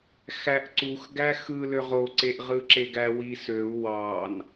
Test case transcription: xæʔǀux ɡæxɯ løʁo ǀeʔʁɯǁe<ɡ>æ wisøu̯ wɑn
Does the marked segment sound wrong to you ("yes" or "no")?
no